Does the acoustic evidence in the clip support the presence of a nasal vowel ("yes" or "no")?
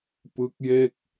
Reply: no